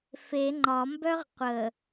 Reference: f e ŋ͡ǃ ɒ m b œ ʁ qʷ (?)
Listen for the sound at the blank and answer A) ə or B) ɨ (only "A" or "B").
A